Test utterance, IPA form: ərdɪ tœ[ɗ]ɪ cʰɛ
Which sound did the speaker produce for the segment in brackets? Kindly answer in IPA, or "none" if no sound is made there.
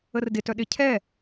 ɗ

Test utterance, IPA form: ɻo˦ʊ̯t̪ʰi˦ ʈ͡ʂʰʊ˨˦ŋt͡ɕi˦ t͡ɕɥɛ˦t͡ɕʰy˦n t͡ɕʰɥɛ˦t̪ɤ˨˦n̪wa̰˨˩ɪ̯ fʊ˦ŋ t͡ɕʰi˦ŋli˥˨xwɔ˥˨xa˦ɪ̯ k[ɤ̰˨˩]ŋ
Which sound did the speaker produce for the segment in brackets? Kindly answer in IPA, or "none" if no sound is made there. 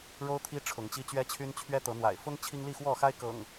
ɤ̰˨˩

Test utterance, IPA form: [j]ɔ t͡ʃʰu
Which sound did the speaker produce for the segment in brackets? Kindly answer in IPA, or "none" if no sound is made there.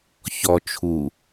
ç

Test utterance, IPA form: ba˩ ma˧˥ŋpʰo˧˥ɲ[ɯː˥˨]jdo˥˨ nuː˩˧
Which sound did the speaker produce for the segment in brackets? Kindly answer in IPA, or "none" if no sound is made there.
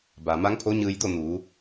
ɯː˧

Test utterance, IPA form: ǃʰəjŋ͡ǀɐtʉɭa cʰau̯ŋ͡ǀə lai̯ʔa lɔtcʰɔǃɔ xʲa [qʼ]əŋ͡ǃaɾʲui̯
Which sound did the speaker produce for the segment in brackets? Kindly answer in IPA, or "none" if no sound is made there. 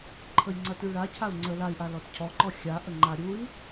ʔ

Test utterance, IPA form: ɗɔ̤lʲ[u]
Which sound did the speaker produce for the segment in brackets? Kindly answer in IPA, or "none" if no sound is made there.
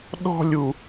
u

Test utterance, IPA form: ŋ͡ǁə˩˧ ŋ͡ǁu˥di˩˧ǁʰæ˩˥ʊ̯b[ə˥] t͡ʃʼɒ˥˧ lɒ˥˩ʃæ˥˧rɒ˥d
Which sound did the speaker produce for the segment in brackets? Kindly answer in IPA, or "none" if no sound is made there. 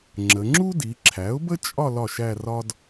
ə˥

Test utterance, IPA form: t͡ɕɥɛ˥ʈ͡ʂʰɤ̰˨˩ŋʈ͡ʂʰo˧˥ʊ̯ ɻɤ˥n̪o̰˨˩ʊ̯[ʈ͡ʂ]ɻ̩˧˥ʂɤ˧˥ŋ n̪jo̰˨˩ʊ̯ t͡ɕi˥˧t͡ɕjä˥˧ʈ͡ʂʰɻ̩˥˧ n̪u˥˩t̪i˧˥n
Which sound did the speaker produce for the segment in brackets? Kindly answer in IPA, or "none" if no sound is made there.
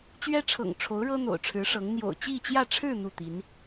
ʈ͡ʂʰ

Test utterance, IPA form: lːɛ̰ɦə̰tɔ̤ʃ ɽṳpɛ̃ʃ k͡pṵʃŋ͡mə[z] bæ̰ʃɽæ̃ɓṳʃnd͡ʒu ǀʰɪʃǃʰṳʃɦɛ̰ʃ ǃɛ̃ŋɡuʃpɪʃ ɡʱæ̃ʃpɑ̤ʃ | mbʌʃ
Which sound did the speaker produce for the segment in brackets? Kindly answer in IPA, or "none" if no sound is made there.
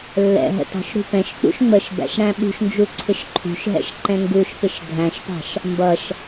ʃ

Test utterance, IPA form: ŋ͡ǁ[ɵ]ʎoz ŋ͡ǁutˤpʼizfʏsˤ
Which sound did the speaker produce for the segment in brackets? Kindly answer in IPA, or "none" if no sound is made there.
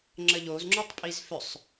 ə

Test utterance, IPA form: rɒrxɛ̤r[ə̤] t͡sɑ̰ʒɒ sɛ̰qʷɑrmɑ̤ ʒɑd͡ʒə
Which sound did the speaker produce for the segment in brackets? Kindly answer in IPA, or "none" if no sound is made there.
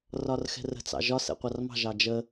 ə̤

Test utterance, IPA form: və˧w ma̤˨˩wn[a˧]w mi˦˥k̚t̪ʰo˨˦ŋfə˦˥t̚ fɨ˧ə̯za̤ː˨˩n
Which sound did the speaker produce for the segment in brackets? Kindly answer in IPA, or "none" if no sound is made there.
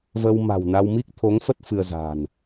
a˧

